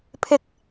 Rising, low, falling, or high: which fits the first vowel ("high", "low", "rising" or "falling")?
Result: high